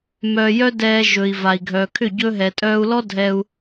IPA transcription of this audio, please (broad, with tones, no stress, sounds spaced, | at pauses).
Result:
m œː˧ j œ˦ d ɛː˧ ʒ ɵ˨ i̯ v a˨ i̯ ɡʱ œː˨ kʰ ʏ˦˨ ɟ ɵː˧ ɦ ɛ˨ tʼ œː˧ u̯ l ɔ˦ dʱ ɛ˧ u̯